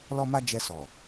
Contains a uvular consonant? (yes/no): no